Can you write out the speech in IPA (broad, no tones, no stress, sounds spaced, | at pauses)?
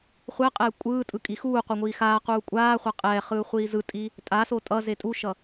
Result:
χʷ ɛ qʼ ɛː kʷʼ ɯː tʼ ɯ kʼ i x uː qʷ ʌ ŋʷ iː x aː q uː kʷʼ aː χʷ a qʼ ɛː χ ɯː χʷ iː z ɯ tʼ i | tʼ a s o tʼ ʌ z e tʼ u ʃ ʌ